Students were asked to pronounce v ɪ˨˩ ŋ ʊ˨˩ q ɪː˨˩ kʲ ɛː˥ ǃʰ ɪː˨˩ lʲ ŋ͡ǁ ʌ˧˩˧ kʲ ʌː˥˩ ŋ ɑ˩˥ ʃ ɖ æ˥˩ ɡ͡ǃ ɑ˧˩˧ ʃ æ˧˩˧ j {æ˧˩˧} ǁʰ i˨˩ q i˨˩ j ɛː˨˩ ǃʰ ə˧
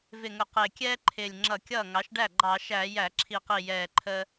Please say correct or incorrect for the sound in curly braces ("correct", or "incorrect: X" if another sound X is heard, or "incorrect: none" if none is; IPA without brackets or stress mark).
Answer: correct